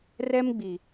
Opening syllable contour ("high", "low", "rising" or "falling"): high